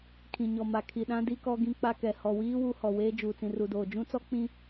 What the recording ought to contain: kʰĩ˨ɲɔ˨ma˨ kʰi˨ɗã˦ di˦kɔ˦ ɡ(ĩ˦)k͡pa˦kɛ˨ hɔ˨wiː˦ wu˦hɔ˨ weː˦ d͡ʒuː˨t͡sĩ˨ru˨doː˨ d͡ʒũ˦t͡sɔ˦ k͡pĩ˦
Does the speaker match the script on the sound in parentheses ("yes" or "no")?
yes